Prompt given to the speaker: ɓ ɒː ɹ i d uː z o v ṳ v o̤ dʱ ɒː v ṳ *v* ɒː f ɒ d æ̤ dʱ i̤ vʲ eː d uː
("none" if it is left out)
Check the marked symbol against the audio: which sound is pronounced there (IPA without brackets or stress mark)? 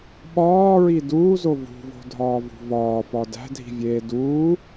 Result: v